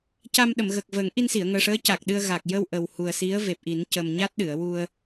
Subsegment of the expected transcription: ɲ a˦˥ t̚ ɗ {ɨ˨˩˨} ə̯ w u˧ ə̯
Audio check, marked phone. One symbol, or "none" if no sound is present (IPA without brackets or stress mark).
ɨ˨˩˨